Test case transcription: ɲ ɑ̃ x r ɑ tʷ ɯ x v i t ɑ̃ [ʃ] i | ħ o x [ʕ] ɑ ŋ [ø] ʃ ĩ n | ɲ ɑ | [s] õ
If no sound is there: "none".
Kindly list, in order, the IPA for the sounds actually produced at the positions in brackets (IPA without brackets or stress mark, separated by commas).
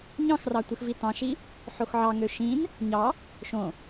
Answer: ʃ, ʕ, ø, ʃ